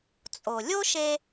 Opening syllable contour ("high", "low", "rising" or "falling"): low